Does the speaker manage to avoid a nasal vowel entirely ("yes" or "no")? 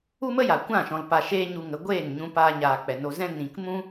no